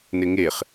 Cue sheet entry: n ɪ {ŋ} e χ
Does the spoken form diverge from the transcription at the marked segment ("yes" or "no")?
no